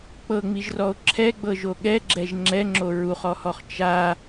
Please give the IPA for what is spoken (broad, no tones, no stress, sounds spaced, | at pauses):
k͡p ɤ ŋ͡m i ʒ r ɔ o̯ ǁʰ ɛ ɡ͡b ɤ ʒ o ɠ ɛ ɡ͡ǁ ɛ ʒ ŋ͡ǁ ɛ ŋ͡ǁ o ɹ u χ ɔ h ɔ χ t͡ʃ a